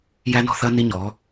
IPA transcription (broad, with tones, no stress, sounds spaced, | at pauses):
j æ˦ n ɔ̤˦ θ ɐ˦ n i˦ ɲ ɔ˨˦